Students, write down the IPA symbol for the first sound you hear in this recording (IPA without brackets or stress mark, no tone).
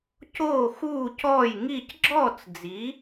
c